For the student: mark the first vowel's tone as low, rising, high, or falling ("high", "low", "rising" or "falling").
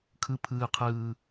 low